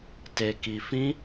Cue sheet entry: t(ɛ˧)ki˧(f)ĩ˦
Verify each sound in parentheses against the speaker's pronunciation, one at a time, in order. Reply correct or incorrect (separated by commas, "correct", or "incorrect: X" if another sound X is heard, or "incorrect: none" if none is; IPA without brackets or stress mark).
incorrect: e˧, correct